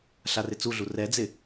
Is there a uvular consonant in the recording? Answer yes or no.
no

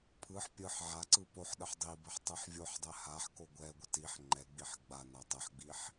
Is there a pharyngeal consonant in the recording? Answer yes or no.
yes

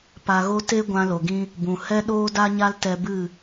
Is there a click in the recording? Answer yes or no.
no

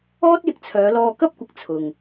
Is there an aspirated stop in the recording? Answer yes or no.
yes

